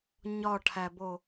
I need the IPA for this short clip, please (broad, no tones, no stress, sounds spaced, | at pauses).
ɲ ɒ ʈʰ æ b o